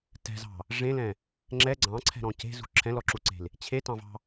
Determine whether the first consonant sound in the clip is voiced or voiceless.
voiceless